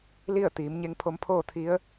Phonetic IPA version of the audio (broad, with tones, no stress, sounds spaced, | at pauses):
l i˥˨ ə̯ t̪ iː˩˧ m ɲ e˧ ŋ pʰ o˧ m pʰ oː˥˨ t̪ʰ i˧˥ ə̯